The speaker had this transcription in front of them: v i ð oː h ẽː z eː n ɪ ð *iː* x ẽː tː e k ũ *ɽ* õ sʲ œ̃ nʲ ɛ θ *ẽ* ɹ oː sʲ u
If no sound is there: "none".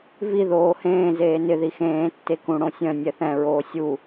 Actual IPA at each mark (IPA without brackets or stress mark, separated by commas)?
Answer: i, ɽ, ɛ̃